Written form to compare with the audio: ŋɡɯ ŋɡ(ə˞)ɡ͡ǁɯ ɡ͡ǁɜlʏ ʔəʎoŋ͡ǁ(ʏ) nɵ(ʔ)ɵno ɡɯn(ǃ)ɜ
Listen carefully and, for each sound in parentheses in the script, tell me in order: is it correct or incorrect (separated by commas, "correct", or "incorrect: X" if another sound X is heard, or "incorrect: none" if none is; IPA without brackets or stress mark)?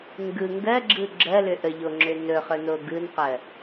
incorrect: ɜ, correct, incorrect: χ, incorrect: q